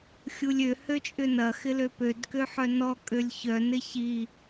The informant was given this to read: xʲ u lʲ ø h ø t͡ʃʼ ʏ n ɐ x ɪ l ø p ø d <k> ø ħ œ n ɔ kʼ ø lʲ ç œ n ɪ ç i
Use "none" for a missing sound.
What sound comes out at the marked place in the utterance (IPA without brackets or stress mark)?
k